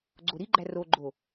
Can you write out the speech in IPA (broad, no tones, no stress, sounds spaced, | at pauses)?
ɡ͡ǀ o ɾ i ɡ͡ǃ æ r o ɡ͡ǃ o